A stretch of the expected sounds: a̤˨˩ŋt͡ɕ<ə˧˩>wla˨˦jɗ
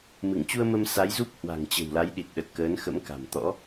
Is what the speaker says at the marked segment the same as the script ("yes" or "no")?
no